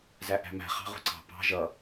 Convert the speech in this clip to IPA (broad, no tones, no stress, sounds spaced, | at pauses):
z æ ʔ æ̤ m æ̤ χ ɑ̤ ʁ ṳ ǀ ɑ̤ p ɑ̤ ʒ ʌ